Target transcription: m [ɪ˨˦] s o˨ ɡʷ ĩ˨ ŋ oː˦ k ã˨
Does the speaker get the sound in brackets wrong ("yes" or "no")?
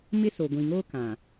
yes